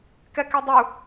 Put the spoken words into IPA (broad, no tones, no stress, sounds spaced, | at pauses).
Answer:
k ɛ k ɛ dˤ u